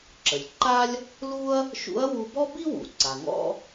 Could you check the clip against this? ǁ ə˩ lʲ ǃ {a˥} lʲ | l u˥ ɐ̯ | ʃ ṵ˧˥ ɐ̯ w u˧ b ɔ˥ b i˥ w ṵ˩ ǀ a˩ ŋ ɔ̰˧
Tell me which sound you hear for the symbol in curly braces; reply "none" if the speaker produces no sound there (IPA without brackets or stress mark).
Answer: a˥